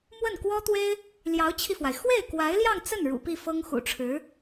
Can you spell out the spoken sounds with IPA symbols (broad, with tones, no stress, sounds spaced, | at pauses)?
m w ə˥˩ n k w ɔ˥ t̪ w e˥ ɪ̯ | l j ɑ˧˥ ʊ̯ t͡ɕʰ i˧ f w a˩ ɪ̯ x w e˥˩ ɪ̯ k w a˧˥ ɪ̯ l j ɑ˥˧ ŋ t͡s ə˥˩ n ɻ ṵ˨˩ p i˥˩ f ɤ˥ ŋ x ṵ˨˩ ʈ͡ʂʰ ɻ̩˧˥